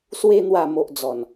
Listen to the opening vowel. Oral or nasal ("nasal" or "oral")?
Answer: oral